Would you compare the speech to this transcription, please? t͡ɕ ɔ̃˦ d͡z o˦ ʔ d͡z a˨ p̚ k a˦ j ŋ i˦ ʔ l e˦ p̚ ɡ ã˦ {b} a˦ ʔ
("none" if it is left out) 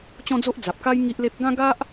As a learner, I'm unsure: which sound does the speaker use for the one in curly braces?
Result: ɡ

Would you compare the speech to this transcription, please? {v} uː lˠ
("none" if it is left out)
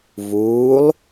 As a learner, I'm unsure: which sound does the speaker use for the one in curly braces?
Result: v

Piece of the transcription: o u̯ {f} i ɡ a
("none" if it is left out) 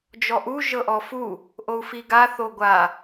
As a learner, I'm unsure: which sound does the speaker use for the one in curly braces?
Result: f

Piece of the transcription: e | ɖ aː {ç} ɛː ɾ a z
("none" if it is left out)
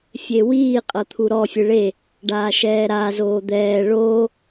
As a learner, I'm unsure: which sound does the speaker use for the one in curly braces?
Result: ʃ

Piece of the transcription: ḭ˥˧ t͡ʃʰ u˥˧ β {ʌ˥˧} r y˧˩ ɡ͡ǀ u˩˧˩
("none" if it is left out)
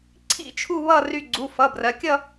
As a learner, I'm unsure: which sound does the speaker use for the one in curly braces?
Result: ʌ˥˧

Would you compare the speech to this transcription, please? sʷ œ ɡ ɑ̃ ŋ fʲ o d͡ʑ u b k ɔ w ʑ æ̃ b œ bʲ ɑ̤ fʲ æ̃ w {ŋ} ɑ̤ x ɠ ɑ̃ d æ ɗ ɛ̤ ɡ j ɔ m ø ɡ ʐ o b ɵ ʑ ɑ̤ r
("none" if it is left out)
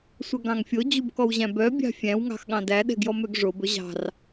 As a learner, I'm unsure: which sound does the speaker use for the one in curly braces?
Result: ŋ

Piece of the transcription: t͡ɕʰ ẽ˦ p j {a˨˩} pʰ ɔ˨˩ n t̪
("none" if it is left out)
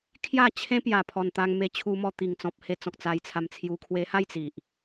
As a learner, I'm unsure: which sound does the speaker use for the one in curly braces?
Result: a˨˩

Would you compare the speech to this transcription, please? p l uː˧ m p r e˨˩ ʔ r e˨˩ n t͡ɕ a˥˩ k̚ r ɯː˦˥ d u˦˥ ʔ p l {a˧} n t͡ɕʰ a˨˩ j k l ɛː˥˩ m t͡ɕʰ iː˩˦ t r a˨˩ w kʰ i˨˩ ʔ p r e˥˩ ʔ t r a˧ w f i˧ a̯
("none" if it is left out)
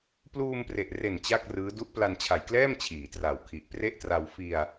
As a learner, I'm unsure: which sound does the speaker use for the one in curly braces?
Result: a˧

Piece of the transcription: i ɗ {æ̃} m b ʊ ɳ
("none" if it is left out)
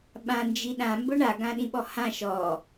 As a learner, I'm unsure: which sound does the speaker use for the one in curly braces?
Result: ã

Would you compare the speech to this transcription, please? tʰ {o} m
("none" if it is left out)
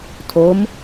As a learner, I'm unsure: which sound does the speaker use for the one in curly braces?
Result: o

